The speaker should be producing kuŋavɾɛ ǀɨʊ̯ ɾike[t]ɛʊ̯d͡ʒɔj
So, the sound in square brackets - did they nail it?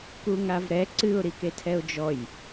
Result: no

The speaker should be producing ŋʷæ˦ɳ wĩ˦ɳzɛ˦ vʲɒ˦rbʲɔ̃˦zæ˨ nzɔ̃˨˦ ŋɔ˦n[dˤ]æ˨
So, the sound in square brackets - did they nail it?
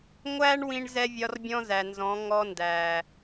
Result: no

